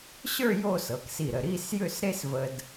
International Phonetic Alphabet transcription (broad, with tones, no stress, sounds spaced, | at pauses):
ɕ ə˞˥˧ j o˥˧ s ɤ˩˧ k s i˧˩ ɾ ə˧˩ ɾ i˥˧ s j ʏ˥˧ s ɾ e˥ s v ə˧ d